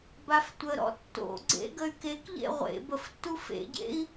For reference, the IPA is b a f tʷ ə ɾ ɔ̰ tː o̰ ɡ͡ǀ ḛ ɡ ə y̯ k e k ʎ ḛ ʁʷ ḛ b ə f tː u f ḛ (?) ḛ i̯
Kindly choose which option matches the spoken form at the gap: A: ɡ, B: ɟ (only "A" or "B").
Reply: B